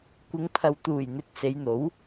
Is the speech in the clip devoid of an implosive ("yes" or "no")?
yes